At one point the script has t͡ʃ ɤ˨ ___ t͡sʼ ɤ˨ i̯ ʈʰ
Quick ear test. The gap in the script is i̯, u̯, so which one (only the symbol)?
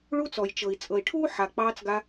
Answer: i̯